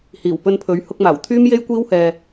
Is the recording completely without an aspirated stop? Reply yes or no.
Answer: no